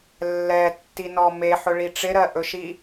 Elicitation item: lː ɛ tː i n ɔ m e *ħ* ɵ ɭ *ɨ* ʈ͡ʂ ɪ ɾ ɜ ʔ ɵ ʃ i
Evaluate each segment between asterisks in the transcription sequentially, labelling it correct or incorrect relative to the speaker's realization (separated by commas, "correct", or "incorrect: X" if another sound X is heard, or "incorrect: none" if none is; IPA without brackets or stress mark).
correct, incorrect: i